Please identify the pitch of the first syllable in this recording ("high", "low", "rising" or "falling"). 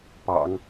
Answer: low